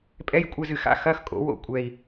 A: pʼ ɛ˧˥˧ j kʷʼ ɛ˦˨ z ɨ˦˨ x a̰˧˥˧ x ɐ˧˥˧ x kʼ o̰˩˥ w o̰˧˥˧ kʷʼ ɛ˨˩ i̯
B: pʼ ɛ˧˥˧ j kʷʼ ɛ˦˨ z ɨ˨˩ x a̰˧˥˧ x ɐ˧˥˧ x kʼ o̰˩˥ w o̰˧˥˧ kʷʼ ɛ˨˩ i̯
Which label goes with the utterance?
B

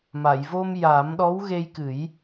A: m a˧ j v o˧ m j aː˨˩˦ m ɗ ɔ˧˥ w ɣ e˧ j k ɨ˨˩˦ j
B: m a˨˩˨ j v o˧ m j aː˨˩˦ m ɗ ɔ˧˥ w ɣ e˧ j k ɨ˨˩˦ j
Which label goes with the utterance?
B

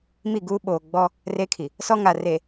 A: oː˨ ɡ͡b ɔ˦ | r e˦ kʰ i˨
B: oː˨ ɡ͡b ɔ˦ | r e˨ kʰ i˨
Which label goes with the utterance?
A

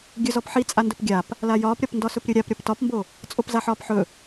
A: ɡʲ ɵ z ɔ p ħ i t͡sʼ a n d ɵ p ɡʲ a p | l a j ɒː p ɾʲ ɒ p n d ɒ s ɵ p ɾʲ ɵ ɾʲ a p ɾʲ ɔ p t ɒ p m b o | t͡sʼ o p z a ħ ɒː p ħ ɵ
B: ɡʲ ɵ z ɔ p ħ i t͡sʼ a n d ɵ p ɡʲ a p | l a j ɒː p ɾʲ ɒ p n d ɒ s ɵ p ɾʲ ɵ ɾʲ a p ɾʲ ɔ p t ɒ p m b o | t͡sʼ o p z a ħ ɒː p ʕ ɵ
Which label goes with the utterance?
A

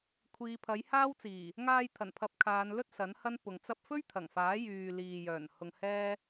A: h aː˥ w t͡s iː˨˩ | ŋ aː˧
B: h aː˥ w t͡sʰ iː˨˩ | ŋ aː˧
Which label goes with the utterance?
A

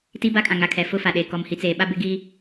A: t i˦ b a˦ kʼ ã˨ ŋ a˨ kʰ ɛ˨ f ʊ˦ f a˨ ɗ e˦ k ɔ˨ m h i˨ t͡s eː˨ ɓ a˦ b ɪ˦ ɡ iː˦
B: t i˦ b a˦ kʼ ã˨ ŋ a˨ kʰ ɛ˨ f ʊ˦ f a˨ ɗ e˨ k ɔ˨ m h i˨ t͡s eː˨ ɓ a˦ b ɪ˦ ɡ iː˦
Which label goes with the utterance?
B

